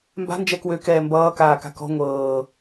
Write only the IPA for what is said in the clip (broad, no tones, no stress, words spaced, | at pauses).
mba̤ nd͡ʒɛkwø kɛːmbʌː kaːka̤kɔ̤ ŋʷɤː